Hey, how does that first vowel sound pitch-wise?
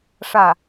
falling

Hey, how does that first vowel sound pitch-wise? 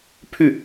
falling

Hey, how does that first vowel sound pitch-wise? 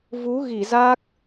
rising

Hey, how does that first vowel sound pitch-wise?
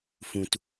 low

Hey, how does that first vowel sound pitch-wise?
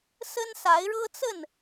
high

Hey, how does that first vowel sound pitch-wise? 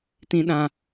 low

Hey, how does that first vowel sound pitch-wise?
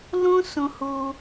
high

